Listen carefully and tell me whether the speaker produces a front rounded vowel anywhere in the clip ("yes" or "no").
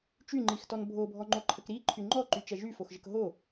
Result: yes